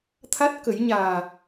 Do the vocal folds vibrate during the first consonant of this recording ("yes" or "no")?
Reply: no